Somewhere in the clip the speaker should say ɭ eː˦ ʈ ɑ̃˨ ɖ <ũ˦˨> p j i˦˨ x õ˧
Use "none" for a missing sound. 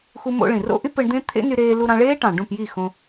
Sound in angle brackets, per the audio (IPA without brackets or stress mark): ũ˦˨